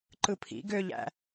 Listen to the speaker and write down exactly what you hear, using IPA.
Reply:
ǃ ɯ pʰ ḭ ɡ ø ʎ æ̰

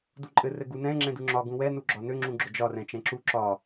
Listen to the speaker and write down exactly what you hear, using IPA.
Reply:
d u ǃʼ ɘ r ɘ ɡ u n ɛ̃ ŋ͡ǁ ɛ̃ d u ŋ͡ǁ ɒ ɡ ũ w ɛ n u ɡ͡ǁ ɒ n ø ŋ͡ǁ ũ ɡ͡ǁ ʊ d͡ʒ ɒ r ɛ̃ t͡ʃ ɛ̃ ǁ u ǁ ɒ

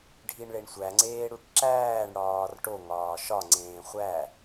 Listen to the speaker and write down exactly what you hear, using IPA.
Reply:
ɖʱ i ɳ ɭ e ɳ sʷ æ ŋ͡ǀ eː ɽ u ʈ ǁ æː ɳ ɽ ɒː r ʈ o ŋ ɒː ʃ ɒ ŋ͡ǀ ẽː χʷ æ

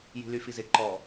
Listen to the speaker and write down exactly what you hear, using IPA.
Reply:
j i̤ l y f i z ɪ ǃ ɔ

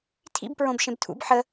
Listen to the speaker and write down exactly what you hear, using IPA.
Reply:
tʰ ḭ b p ɹ õ b ʃ ẽ b tʰ ṵ b ħ ə

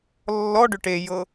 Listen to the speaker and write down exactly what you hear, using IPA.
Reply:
lː ɔ ɖ ʏ ʈ e j ɤ

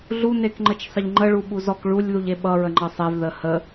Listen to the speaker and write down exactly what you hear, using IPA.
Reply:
ɮ u n e k ŋ͡ǃ ə t͡ʃ sˤ ə ʎ ŋ͡ǃ ə ɭ u ɓ u z ɔ k ɭ u lʲ ð u ʎ e ɓ ʌ ɹ ə ŋ͡ǃ ʌ sˤ e v ð ə h ə

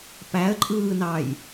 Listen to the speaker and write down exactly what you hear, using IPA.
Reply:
p æ ə̯ ǃʼ ɯː n ɑ j

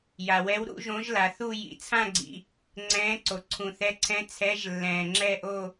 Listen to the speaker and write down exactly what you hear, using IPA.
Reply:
j a˨ w ɛ˧˥ w ɾ ṵ˧˥ ʒ õ˧˥ ʒ l a˨ θ u˥˧ j ḭ˨ t͡sʰ ã˥˧ ɡ͡ǀ ḭ˨ | ŋ͡ǀ ɛ̃ː˧˥ ǀ o˨ ǀʰ ũ˨ θ ɛ˧˥ ǀʰ ɛ̃˧˥ t͡sʰ ɛ˧˥ ʒ lː ɛ̃ː˨ ŋ͡ǁ ɛ˥˧ ʔ o˥˧

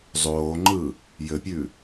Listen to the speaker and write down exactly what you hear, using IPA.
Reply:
zˤ oː ŋ͡ǃ ɯ | j ɘ pʲ ʉ

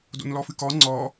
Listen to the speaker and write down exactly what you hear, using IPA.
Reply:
d o̰ n l ɔ f ɨ k ɔ ŋ͡ǀ ɔ

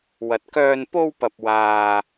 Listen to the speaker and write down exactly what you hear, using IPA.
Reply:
w ɐ˨ t̚ k œː˧ n p o˧ w p ɐ˨ p̚ w aː˨

